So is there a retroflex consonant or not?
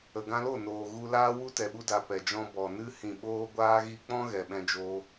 no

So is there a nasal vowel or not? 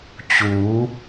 no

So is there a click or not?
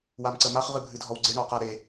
yes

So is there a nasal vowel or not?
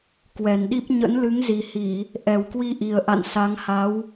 no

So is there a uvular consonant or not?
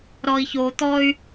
no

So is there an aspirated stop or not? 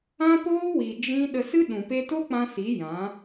no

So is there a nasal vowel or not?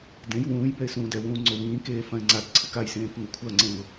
yes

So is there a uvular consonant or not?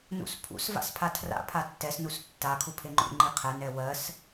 yes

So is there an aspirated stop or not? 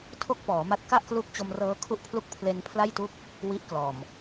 yes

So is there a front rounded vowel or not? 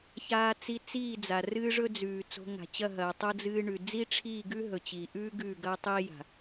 no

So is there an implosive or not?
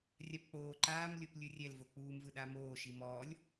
yes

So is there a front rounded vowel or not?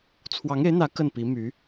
yes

